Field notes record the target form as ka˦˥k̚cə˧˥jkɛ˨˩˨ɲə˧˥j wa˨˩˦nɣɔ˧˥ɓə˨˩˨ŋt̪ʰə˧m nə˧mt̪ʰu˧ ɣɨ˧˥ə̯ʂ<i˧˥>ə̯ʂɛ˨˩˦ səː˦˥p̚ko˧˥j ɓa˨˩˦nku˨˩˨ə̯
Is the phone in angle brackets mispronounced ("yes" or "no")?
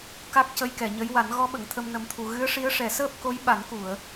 no